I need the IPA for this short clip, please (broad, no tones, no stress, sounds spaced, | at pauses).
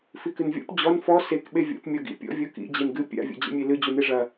f i k ɨ n vʲ ɔ̰ p d͡ʑ ɔ n f ɔ s e k ɓ e vʲ ɔ̰ p mʲ ɔ ɡ ḭ pʲ ɔ̰ vʲ o k ḭ d͡ʑ e n ɡ ɨ pʲ a̰ vʲ o̰ d͡ʑ ḛ mʲ e l ɨ d͡ʑ u n e ʐ ɐ